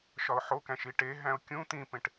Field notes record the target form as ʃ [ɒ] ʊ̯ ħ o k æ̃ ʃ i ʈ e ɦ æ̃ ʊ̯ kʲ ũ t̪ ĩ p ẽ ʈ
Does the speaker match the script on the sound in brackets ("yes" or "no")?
yes